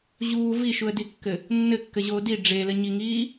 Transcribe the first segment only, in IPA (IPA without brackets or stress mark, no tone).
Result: ʑ